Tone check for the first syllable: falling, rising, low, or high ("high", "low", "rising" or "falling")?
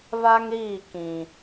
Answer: high